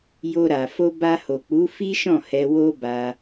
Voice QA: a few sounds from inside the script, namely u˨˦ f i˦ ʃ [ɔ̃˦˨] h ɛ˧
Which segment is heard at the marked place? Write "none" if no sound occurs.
ɔ̃˦˨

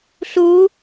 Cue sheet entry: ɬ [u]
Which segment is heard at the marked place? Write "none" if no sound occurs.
u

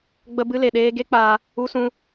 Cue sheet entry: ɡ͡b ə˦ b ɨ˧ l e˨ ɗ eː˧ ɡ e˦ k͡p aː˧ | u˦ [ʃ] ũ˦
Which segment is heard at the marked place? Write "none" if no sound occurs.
s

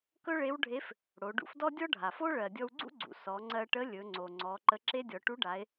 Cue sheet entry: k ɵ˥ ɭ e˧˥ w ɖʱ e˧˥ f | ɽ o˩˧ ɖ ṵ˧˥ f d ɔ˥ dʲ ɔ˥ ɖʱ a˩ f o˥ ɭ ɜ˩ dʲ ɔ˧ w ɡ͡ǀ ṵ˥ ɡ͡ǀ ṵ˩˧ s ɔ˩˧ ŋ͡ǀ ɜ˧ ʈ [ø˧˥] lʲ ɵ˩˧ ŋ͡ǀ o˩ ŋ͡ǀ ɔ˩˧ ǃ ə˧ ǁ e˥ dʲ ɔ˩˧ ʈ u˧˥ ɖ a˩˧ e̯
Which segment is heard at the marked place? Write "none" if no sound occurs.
ə˧˥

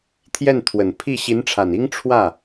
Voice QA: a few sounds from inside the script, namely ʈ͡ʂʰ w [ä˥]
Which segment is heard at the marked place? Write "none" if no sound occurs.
ä˥˩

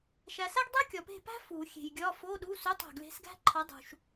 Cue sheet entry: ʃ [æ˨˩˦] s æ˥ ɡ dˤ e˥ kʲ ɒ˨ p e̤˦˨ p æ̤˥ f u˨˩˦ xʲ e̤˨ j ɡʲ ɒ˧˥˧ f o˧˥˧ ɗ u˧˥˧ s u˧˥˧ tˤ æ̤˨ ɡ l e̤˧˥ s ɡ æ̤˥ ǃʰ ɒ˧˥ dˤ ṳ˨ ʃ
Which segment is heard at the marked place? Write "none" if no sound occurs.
æ˨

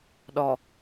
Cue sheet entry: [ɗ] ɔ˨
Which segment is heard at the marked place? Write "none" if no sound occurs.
ɗ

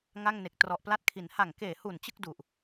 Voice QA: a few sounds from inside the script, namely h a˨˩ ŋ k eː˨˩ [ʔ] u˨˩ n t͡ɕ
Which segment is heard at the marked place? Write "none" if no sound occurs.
h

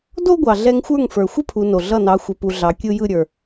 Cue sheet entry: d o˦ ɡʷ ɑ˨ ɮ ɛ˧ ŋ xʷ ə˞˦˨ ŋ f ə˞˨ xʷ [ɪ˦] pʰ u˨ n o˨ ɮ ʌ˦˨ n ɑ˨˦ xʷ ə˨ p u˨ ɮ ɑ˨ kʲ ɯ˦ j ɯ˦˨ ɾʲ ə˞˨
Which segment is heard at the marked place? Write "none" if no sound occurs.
ə˦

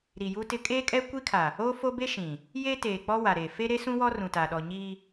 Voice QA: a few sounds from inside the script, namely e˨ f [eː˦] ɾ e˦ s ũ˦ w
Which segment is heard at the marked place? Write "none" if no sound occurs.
e˦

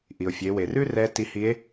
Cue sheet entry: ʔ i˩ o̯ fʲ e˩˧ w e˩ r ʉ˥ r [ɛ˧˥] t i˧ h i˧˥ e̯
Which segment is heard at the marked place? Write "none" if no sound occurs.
ɛ˧˥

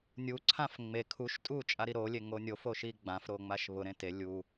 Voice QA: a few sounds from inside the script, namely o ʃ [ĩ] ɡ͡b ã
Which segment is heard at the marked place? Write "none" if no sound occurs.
i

